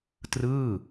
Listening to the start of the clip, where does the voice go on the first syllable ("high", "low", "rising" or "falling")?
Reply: falling